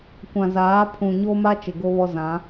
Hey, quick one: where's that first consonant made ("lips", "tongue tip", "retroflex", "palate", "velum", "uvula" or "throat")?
velum